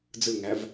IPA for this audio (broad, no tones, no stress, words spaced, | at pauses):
d͡zɯŋæv